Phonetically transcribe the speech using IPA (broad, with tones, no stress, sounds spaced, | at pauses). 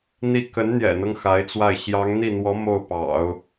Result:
n̪ i˥˩ k ə˧˥ n n̪ j ɛ̰˨˩ n̪ ɤ˦ ŋ x a˧˥ ɪ̯ t͡s w a˥˩ ɪ̯ ɕ j ɑ˧˥ ŋ n̪ i˥˩ n̪ w ɔ˧˥ m o˥˩ ʊ̯ p ɑ̰˨˩˦ ʊ̯